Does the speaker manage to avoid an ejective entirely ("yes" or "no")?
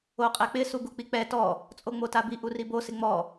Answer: no